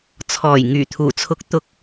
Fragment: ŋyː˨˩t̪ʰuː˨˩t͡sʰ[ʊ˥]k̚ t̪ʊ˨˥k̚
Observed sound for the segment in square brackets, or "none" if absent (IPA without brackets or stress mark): ʊ˨˥